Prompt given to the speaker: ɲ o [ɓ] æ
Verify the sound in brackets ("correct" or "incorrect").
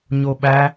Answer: correct